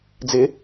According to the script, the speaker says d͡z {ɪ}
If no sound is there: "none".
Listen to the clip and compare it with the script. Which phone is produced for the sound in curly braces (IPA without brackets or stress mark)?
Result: ɪ